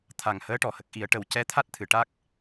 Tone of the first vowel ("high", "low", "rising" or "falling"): low